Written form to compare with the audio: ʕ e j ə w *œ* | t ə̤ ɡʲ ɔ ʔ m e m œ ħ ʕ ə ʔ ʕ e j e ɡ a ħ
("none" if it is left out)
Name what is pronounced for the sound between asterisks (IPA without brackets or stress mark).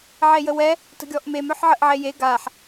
ɛ